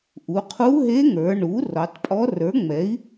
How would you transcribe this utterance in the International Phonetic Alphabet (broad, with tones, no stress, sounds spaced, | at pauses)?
ʔ u˩˧ qʰ u˧˥ ɦ e˧˥ ŋ ə˞˩˧ ɳ u˩˥ r ɔ˩˧ tˤ pʼ ɔ˧˥ r ə˞˩˥ ŋ͡m ɛ˩˥ i̯